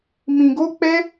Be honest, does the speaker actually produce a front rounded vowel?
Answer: no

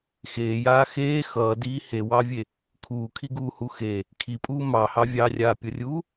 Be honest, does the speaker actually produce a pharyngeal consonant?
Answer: no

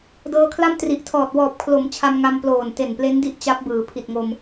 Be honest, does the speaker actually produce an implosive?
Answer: no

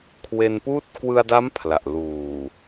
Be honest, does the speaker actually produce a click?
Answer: no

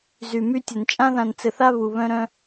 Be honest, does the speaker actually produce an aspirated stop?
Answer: no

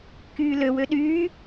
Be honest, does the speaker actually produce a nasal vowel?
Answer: no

